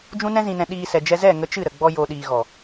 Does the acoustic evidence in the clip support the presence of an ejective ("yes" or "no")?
no